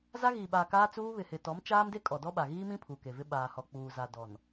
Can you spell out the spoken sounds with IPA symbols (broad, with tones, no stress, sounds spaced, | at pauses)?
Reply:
z a˦ ɣ iː˨ ɓ aː˨ k aː˦ t͡s uː˦ β ɪ˨ h ɪ˨ t ɔ˨˦ m t͡ʃ aː˦ m d e˦ kʼ ɔ˨ d ɔ˦ ɓ a˨ ɣ iː˦ m ĩ˦ pʰ u˨ k e˨ v ɪ˦ ɓ aː˨ h ɔ˨ k͡p uː˨ z a˨ d ɔ˨ n